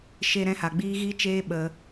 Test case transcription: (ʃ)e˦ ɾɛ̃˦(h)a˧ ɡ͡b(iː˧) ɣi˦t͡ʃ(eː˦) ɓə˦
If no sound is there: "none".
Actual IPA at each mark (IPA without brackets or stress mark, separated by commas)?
ʃ, h, iː˦, eː˦